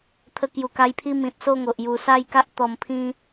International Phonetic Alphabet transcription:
t̪ʰ ə˧ k j u˨˩ k a˧ j pʰ i˦ m ĩ˨ t̚ s o˥˧ ŋ o˨ ʔ j u˨˩ s a˥˧ j k a˦ ʔ t̪ ɔ˨˩ m pʰ ĩ˧

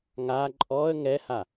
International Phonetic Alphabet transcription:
ŋ a ǃʼ ɔ ə̯ ŋ ɛ h a

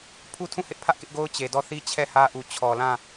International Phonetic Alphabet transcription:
pʰ u˦ tʰ ũ˦˨ h ɪ˦ ʔ pʰ ä˦ ʔ k ɪ˦ ʔ ɡ o˦ ʊ̯ t͡ɕ e˨ d ɔ˦˨ θ i˦ t͡ɕʰ ɛ˦˨ h ä˦ ʔ u˨ t͡ɕʰ ɔ˨ l ã˦˨

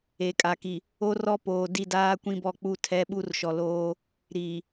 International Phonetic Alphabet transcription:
e˨ kʼ a˨ k i˨ | o˦ r ɔ˦ p oː˨ d i˦˨ d aː˦ kʷ ĩ˦ b ɔ˦˨ k͡p u˦˨ tʰ ɛ˦ ɓ u˦ r ʃ ɔ˨ l oː˦ | ɾ iː˨

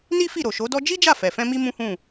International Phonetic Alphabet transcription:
n i˦ f i˦˨ ɾ o˨ ʃ o˨˦ d ɔ˦ d͡ʒ i˦ d͡ʒ a˦˨ f ɛ˨ f ɛ̃˧ m i˦ m ũ˦ h ũ˦˨

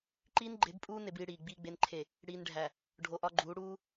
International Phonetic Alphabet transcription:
ǃ iː˦ n ɡ͡ǃ e˨˦ b pʼ uː˦ n e˦ b iː˦ ɽ iː˨ ɡ͡b iː˨ ɡ͡b e˨ n ǃʰ e˨ | ɽ iː˨ n ɖʱ æ˨ | ɖʱ o˨ ʔ ɒ˦ ɡ͡ǃ uː˨˦ ɽ uː˦

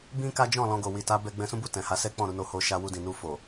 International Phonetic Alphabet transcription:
b ĩ˦ k a˦ d͡ʒ ɔ̃˦˨ l ɔ̃˧ ɡ o˨ w i˨ t a˨˦ b ɛ˧ ɡ͡b ɛ̃˧ s ũ˦ b u˦˨ t ɛ̃˨ h a˨˦ s ɛ˦ k͡p ɔ̃˦˨ ɾ u˧ n o˧ h o˧ ʃ a˧ w u˧ d ĩ˨ n u˧ f o˨

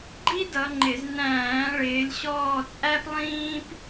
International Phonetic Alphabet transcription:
ɡ͡ǃ i˥ d ʌ˨˦ ŋ͡ǃ ɪ˧˩˧ z n æ̃ː˧˩˧ ɭ ɪː˨˦ lʲ ɕ ɔː˦˨ t͡sʼ æ˥ p lˠ ĩː˥ p

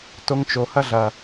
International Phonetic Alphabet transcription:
t o˧ ŋ t͡ʃ o˨ h ɐ˦ ɮ ɐ˨

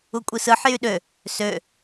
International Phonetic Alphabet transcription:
u kʷʼ i s ɯ ħ j y ɗ ø | s ø

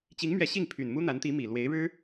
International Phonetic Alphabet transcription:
t͡ɕ i˧˥ ŋ m ɥ ɛ˧˥ ɕ i˥˩ ŋ pʰ y˨˩ n m u˥ n̪ a˧˥ n t̪ i˧˥ m i˨˩ l w e˧˥ ɪ̯ ɻ ɻ̩˥

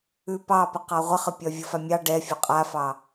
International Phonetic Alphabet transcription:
ʉ p ɑ p ə q ɑ ʁʷ ə χ ə pʲ ɒ vʲ ə f a mʲ ɑ ɖ ɛ fʲ ɒ qʼ a f ɑ

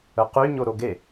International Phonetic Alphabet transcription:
ə q y ɲ o ɾ o ɡ e

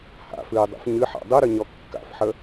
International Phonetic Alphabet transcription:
h a̰ f ɨː dˤ ṵ f ɲ ɨ ħ a̰ dˤ ɨ ɾ ɨ ɲ ɔ kː a̰ f ħ ə

